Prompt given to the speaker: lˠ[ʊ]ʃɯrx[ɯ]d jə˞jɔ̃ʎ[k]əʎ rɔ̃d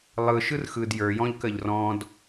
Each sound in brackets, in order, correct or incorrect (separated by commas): incorrect, correct, correct